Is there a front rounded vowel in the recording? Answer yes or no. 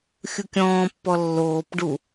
no